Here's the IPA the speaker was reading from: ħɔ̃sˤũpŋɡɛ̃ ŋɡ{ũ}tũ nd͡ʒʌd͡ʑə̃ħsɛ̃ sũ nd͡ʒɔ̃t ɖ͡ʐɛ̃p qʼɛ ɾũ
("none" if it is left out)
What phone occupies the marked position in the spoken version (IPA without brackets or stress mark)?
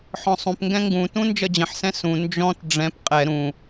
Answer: ũ